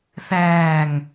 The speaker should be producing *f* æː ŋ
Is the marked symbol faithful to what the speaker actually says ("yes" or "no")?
no